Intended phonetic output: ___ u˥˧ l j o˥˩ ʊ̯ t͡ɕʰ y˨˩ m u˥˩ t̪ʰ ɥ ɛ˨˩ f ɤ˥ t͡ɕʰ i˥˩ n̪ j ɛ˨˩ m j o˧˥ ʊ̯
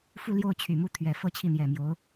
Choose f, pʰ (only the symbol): f